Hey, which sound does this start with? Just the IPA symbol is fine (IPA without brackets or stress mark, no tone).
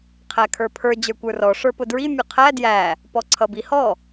qʰ